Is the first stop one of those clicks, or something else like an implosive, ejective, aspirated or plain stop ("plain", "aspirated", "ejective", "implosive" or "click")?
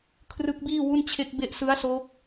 aspirated